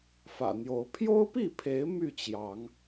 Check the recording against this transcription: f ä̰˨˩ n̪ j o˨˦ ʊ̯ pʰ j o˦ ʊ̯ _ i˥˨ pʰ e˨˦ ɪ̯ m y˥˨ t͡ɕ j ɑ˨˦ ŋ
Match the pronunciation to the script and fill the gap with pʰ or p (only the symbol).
p